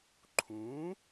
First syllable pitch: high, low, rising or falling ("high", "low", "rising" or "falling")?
rising